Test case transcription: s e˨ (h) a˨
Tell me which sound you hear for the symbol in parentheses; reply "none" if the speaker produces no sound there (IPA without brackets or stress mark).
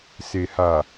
h